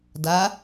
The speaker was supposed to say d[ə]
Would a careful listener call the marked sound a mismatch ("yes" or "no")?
yes